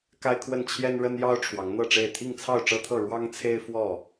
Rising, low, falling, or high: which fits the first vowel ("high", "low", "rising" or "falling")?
high